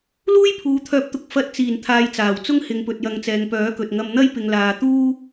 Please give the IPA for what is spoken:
l uː˥ j pʰ uː˨ t̪ʰ œː˨˥ p̚ t̪ ʊ˨ k̚ f ɐ˧ t̚ t͡s iː˨˩ n t̪ʰ aː˨ j t͡s aː˨˩ w t͡s ʊ˥ ŋ h ɪ˨˧ ŋ p ɵ˨ t̚ j ɐ˨˧ ŋ t͡s ɛː˨ ŋ p œː˨˥ k ɵ˨ t̚ ŋ ɐ˧ m n̪ ɐ˥ j p ɪ˧ ŋ l aː˧ t̪ uː˥

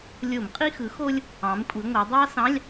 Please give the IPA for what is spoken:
lʲ o˧˩˧ m qʼ i˥ x ɯ˩˥ x o˥ lʲ | ɑ̃˩˧ m kʷʼ i˩˧ ŋʷ æ˩˧ dˤ ɑ˥ s ɑ̃˧˥˧ lʲ

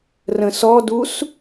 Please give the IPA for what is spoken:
r ə̃ s ɔ d u s

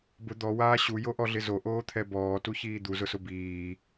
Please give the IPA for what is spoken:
b ʊ d̪ ɔ w aː ɕ u j o ʔ ɔ ɮ ɪ z o ʔ oː t̪ʰ ɛ b ɔː t u ç iː d̪ u z ʊ s ʊ b iː

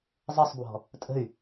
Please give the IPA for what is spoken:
zˤ ə sˤ b w ɔ̤ | tʼ ə̤ y̯

